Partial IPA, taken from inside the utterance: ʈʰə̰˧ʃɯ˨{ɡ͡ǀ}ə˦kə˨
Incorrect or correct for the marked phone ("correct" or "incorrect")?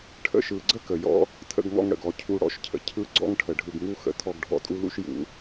correct